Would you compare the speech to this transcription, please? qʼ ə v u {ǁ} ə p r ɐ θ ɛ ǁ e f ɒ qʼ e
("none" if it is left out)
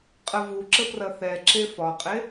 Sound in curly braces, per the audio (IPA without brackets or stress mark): ǁ